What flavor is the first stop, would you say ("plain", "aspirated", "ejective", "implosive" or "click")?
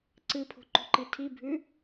click